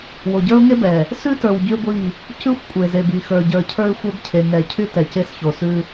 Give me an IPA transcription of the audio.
w o˨ ɟ ə˞˦ ʊ̯ ŋ e˦ b ɛ˨ | s ʉ˦ t ə˞˨ w ɟ y˦ ɡʷ i˦˨ | c ʉ˦ xʷ kʷʼ e˨ z e˨ b i˨ x ə˞˨ ɟ ə˞˨ cʰ ə˞˦ ɪ̯ xʷ ɛ˦ b cʰ e˨ ŋ ɛ˨ cʰ y˦ t ɛ˨ c e˦ s ç o˨ s ʉ˦

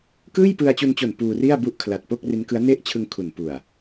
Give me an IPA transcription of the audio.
k ɯː˥˩ j p ɯ˧ a̯ t͡ɕ u˧ n t͡ɕ o˨˩ n p uː˧ r i˥˩ a̯ b u˥˩ ʔ kʰ l a˨˩ t̚ p o˥˩ k̚ r i˦˥ n k ɯ˦˥ a̯ n e˥˩ ʔ t͡ɕʰ ɯ˧ ŋ kʰ u˨˩ n p u˨˩ a̯

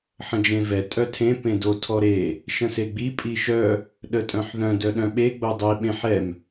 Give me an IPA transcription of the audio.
ħ ə̃ d͡ʒ ẽ v ɛ tʼ œ tʰ ẽ p ẽ d o tʰ ɔ ɾ e | ʃ ə̃ s e ɡ͡b i pʼ i ʃ œ | ɗ ə tʼ œ̃ ħ ð œ̃ d œ ɗ œ̃ ɓ e ɡ͡b o dˤ i ɓ ẽ ħ ɛ m

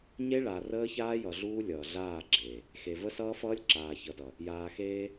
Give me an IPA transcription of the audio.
ɲ e˦ ɭ a˨ r əː˦ ç aː˦ j ʌ˨ ɮ uː˦ lʲ ʌː˨ ɮ aː˦˨ ɡ͡ǁ eː˨ | x e˨ v ə˦ s ʌː˦ f ʌː˦ lʲ ǁ aː˨ ç ʌ˨ d ʌ˨ | j aː˨ x eː˦

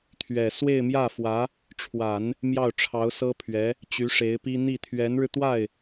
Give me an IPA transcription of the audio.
t̪ʰ ɥ ɛ˨˩ s w e˥˧ ɪ̯ m j ä˥˩ f w ä˧˥ | ʈ͡ʂʰ w a˨˩˦ n | m j ɑ˥˩ ʊ̯ ʈ͡ʂʰ ɑ˧˥ ʊ̯ s ɤ˥ pʰ ɥ ɛ˧˥ | t͡ɕ y˧˥ ʂ e˧˥ ɪ̯ p i˥ n̪ i˥˩ t̪ʰ ɥ ɛ˧˥ n ɻ ɻ̩˧ t̪ w a˥˩ ɪ̯

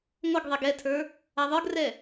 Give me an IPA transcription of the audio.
ŋʷ ə ɡ ðˤ ɛ ɡ ɛ tʰ ə˞ | a ðˤ ə˞ ɡ r ɛ

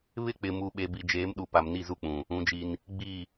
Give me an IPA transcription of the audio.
β ɪ˦ k͡p ɪ˨ m u˨ ɓ e˨ b i˨ d͡ʒ eː˨˦ m ɗ u˨ p a˨ m n i˦˨ z u˦ k͡p ũ˨ | ũ˨˦ d͡ʒ i˦ n | ɡ͡b i˦˨

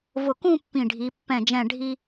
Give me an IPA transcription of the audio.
v ʊ˧˩ k ũ˥˧ pː ĩ˧˩ ɖʱ i˩˧ pː ɛ̃˧˩ d͡ʒ ɛ̃˧˩ ɖʱ i˧

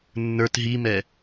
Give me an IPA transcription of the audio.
nː ə˞ t ɦ i m ɛ

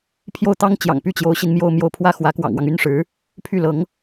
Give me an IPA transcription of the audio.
pʰ j o˥˩ ʊ̯ t̪ ɑ˥ ŋ t͡ɕ j ɑ̰˨˩ ŋ p y˥˩ t͡ɕ j o˧˥ ʊ̯ ɕ i˧ n m j o˥˧ ʊ̯ m j o˥˩ ʊ̯ pʰ w ä˥ x w ä˧˥ k w ɑ̰˨˩ ŋ w ɑ˦ ŋ y˥ n ʂ ɻ̩˧˥ | pʰ y˥˩ l ɤ˧˥ ŋ

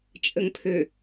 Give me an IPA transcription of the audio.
t͡ʃʼ ə ŋ pʰ ø

